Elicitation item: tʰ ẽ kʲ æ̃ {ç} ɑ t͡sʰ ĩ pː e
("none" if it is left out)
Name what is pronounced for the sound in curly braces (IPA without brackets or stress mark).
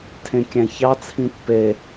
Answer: ç